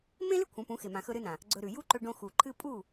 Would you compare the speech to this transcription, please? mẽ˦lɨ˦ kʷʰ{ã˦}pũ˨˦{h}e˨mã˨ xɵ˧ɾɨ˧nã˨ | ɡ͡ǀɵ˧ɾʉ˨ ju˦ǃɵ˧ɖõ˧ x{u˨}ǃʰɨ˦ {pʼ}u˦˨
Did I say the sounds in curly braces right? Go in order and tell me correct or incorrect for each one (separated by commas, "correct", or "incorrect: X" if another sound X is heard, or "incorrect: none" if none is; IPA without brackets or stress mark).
incorrect: ã˨˦, incorrect: x, correct, correct